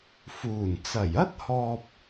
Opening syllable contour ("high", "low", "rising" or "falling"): low